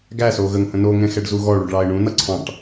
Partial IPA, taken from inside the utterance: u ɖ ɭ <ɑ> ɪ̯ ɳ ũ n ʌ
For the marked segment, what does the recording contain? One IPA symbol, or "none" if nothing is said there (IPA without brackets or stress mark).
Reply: ɑ